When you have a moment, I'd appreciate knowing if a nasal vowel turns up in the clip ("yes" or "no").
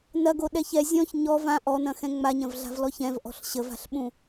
yes